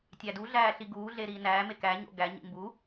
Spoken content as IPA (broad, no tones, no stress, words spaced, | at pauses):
tʲæduɮæː ɬiɡuːɮe ɾiːnæːme kæɲo̰ ɡæɲḭ mbu